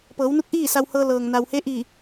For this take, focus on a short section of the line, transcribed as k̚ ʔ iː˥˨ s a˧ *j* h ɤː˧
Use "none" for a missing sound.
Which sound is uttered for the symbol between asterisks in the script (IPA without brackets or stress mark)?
w